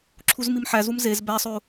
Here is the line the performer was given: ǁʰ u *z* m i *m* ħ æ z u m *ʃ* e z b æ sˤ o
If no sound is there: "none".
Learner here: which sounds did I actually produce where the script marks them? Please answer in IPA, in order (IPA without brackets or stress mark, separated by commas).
z, m, z